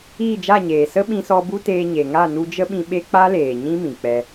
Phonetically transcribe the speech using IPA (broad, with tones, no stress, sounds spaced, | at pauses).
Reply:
iː˦˨ d͡ʒ a˦˨ ɲ eː˨ s ə˦ ɓ ĩ˧ s ɔ˧ b u˦ t eː˧ ɲ e˨ ŋ a˦˨ n u˧ d͡ʒ ə˦ ɓ ĩ˧ ɓ e˦ k͡p a˦ l eː˨ ɲ ĩ˦ m ĩ˨ k͡p ɛ˧